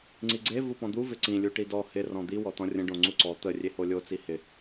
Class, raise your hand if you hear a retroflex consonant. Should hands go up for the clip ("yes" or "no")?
yes